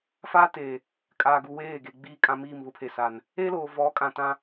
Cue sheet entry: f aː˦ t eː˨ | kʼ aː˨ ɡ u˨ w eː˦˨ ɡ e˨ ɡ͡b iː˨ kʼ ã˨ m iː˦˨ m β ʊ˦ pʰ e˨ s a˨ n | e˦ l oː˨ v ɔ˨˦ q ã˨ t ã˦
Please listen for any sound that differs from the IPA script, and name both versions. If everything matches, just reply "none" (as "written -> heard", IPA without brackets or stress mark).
q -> kʼ